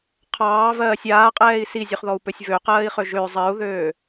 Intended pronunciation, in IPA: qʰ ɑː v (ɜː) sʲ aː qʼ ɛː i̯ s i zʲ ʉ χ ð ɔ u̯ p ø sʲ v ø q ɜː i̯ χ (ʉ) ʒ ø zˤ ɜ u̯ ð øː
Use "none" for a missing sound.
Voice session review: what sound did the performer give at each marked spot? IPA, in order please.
ɜː, ø

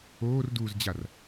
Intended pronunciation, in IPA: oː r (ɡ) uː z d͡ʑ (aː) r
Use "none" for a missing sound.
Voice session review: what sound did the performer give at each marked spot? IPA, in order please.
d, a

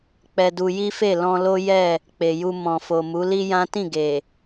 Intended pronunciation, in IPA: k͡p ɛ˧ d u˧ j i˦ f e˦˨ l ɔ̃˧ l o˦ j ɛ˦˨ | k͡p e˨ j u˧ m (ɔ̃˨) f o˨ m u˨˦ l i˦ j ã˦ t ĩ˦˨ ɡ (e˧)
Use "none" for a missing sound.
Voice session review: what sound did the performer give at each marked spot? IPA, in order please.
ɔ̃˨, e˨

